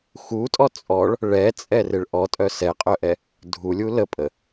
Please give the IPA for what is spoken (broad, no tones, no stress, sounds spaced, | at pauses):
x u tʼ ɔ t͡sʼ ɔ ɭ | ɭ ɛ t͡sʼ ɛ r ɪ ɭ ʔ ɔ tʼ œ s ɛ qʼ œ ʔ ɛ | dʱ u lʲ u l ə pʼ ə